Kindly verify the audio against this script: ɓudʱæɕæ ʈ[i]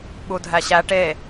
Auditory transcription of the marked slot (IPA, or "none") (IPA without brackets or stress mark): e